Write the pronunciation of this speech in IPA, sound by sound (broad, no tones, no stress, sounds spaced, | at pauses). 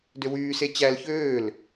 d ø w yː s e t͡ɕ æ l ç øː l